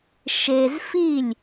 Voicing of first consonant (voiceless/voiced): voiceless